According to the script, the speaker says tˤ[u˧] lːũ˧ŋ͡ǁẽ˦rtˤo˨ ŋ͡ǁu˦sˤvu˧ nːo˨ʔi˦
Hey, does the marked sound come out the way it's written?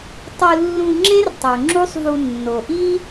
yes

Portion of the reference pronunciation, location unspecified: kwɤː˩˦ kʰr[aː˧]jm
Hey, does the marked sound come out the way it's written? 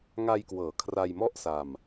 no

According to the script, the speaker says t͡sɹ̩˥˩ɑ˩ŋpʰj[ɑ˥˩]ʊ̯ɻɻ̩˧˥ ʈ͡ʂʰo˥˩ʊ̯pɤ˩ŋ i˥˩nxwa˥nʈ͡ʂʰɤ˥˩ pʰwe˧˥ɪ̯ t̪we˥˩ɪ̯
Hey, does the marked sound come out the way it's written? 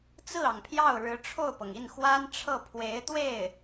yes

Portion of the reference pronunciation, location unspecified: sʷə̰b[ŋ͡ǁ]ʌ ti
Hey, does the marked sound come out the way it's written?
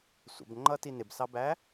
no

